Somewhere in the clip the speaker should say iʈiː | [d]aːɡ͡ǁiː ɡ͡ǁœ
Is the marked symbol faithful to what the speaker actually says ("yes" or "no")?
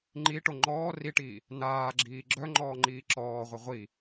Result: no